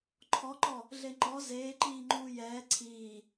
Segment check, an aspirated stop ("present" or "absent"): present